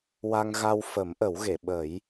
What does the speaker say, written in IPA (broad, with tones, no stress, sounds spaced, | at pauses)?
w a˧ ŋ ɣ a˧ w f ə˨˩˦ m ʔ ə˨˩˦ w ɣ e˨˩˨ ɓ ə˨˩˦ j